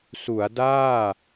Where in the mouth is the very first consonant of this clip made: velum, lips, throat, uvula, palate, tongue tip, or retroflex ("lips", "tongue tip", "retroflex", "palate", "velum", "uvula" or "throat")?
tongue tip